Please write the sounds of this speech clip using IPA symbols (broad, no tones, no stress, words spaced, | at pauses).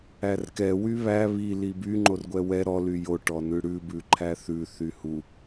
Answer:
ærkɛ wyβæ βi liby ŋ͡ǃorɡʷɛwɛ ɾɔ lyjo ʈɔnʉɽʉ bʉǃʰæθʉ θyhu